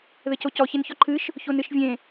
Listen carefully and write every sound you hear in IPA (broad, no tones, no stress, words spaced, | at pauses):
ðɘcocɔ çençɔǃʰɨʃ | çonɨʃvʲẽ